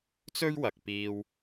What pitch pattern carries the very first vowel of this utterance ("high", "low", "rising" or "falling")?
high